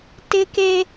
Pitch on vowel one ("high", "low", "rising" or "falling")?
high